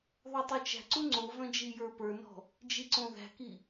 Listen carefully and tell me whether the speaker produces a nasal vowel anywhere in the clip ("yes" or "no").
yes